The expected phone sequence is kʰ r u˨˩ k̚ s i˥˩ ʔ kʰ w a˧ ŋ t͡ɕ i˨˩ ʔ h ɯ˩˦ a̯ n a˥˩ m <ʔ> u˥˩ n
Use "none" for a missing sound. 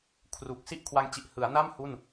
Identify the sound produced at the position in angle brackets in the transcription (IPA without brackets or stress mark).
h